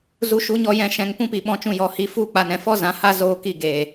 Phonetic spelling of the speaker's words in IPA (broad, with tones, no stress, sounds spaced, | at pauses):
z u˧ ʃ u˨˦ ɲ ɔ˧ j ɛ̃˨ ʃ ɛ̃˨ ŋ p ũ˦ p i˨ ɓ ɔ̃˧ t͡ʃ ũ˧ j ɔ˨ h i˨ f u˦˨ k͡p a˨ n ɛ̃˨ f ɔ˦ z ã˨ h a˦ z oː˧ k i˦˨ ɡ eː˨